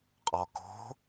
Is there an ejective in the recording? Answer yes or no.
yes